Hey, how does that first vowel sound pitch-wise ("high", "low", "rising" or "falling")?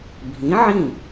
rising